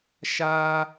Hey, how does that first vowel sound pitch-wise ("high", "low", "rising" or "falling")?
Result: high